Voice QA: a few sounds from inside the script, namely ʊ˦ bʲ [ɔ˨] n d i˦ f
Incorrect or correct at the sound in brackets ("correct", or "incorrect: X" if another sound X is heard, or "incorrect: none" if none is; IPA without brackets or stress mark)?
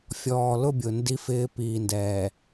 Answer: incorrect: ʊ˨